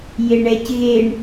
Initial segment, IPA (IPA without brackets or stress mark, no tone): j